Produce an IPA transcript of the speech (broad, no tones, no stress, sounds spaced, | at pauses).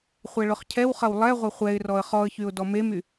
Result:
χʷ ɛ ɭ ʊ χ cʰ ɛ w χ ɐ w lˠ ɛ ʁʷ ɐ χʷ ɛ ɪ̯ r ɔ ə̯ χ ɔ ə̯ ç y ʊ̯ d ɔ m e m y